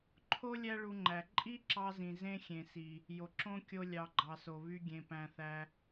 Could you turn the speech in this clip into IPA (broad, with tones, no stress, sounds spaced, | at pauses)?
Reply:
ǃʰ o˦ lʲ æ˦ ɭ u˧ ŋ͡ǃ æ˨ ǃʼ i˦ ǁ ɑ˧ z ĩ˨ z ẽ˦ xʲ ẽ˨ s i˨ | j o˨ ǁ õ˦ kʲ o˦ lʲ ɑ˧ ɡ͡ǃ ɑ˨ s o˨ β y˧ ɡʲ ẽ˨ p æ̃˨ θ æ˧